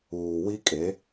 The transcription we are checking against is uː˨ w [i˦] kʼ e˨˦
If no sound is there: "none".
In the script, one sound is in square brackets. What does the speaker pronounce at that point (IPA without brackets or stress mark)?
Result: i˦